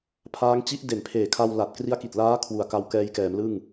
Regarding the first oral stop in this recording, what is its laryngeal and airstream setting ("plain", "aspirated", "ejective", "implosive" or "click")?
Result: aspirated